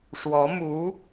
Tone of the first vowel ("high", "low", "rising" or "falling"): rising